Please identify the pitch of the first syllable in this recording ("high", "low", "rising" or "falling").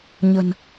low